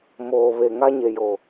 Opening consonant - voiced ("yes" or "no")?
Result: yes